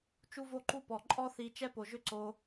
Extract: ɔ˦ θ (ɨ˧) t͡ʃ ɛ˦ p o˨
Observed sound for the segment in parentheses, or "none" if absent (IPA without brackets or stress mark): i˧